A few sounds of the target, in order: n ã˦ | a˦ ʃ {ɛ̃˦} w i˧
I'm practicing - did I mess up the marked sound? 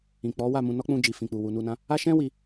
no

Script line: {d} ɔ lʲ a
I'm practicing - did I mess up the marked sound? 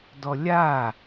no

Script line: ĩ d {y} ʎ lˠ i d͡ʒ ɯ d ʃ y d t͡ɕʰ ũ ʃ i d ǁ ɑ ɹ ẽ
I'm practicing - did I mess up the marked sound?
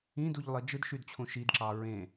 yes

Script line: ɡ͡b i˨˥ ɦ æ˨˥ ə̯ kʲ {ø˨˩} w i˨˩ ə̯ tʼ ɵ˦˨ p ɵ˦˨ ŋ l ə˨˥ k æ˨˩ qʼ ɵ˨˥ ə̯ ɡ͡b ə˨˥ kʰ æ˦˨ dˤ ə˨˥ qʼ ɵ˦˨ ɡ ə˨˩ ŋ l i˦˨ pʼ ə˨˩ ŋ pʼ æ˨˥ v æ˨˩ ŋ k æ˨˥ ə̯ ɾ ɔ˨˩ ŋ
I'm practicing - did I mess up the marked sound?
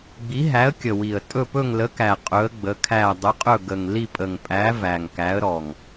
yes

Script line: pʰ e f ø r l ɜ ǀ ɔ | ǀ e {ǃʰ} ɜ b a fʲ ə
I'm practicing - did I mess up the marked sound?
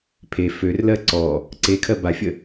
yes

